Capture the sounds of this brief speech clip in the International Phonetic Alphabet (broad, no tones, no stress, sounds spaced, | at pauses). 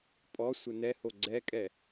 pʼ ɔ sʷ ɘ n ɛ h o ɡ͡ǀ ɛ kʼ ɛ